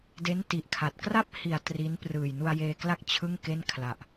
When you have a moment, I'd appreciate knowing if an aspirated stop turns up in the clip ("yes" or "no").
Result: yes